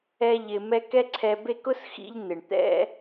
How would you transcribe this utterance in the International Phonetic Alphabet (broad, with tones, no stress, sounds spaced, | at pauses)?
ɛ˦ ʎ ɪ˧ m ɛ˦ k ɛ˦ ǀʰ ɛ˧ b e˦ k ʊ˦ s x ḭ˧ ʎ n̪ ɪ˨ ɳ t̪ ɛ̰˦